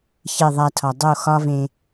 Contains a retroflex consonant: no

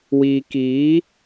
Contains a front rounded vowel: no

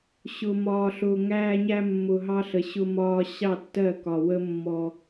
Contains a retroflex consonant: no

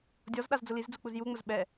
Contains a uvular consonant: no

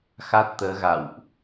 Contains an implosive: no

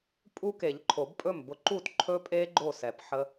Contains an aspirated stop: yes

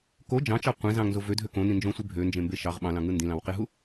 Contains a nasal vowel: yes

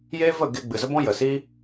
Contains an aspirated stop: no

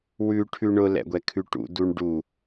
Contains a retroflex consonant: yes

